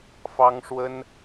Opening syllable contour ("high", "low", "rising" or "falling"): high